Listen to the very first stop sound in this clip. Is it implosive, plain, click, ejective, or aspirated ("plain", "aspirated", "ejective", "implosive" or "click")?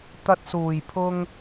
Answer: plain